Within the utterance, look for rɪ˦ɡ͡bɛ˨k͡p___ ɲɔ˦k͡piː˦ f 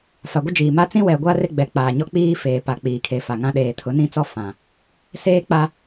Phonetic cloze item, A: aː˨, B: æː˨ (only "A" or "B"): A